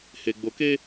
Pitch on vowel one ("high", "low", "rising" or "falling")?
low